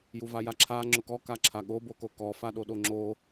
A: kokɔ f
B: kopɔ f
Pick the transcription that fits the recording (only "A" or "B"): A